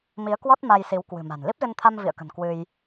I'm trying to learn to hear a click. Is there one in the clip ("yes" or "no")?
no